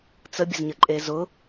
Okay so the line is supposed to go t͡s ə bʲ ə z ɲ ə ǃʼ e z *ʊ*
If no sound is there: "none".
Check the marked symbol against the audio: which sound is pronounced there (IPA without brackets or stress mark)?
ʊ